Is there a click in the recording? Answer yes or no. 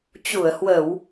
no